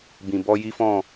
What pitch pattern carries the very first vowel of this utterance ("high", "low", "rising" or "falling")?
low